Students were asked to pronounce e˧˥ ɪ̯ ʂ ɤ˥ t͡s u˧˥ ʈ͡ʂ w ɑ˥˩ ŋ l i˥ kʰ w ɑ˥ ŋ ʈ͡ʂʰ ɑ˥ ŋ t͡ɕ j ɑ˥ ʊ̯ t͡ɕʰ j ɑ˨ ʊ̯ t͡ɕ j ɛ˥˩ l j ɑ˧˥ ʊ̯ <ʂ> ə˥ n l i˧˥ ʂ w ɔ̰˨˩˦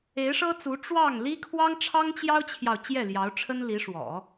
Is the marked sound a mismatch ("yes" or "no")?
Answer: yes